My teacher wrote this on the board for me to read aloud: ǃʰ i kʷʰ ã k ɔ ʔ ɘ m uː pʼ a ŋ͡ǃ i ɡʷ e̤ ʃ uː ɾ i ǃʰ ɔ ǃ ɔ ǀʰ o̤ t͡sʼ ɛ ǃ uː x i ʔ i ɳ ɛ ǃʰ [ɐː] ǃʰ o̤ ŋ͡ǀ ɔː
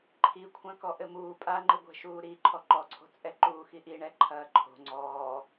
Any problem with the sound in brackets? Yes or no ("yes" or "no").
no